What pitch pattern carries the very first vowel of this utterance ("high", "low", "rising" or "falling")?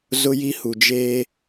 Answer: high